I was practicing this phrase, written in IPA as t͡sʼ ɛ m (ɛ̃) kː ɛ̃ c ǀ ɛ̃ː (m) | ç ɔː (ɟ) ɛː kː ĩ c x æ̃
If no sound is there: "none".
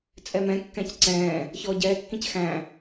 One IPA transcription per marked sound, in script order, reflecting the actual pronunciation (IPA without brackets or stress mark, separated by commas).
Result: ɛ̃, none, ɟ